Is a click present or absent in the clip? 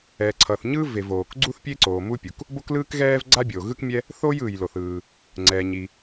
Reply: present